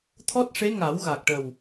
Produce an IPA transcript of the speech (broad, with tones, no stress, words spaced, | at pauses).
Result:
t̪ʰɔ˦˥t̚ʂe˧˥ŋa˨˩˦wɣa˨˩k̚ ʈə˨˩w